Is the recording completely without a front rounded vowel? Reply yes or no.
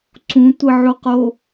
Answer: yes